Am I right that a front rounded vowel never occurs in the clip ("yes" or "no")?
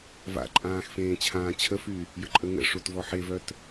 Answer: no